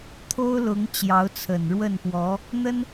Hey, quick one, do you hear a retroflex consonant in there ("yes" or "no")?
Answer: yes